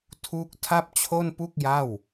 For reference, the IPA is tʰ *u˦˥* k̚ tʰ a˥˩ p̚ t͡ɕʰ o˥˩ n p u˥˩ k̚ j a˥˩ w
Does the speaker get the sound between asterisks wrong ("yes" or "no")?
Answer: no